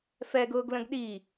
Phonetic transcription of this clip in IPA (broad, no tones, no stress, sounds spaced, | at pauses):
f ɛ ɡ ʊː ɡ l ə̃ ɡ ɗ i